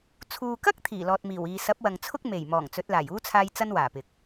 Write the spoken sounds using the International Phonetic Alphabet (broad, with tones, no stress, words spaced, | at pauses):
t͡sʰuː˨kɐ˥k̚ t̪ʰiː˨˩lɔː˨t̚miː˨˩wiː˨ sɐ˨˥p̚wɐ˨ŋt͡sʰʊ˥k̚ me˨˩j mɔː˨˩ŋt͡sɵ˨˥t̚laː˨˩j uː˥t͡sʰaː˧j t͡sɐ˥nwaː˨˩pɪ˨k̚